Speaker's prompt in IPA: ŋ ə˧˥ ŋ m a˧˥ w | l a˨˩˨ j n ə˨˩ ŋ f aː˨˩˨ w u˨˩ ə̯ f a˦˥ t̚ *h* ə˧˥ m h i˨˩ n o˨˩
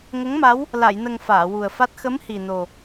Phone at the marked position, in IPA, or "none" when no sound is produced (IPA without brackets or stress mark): x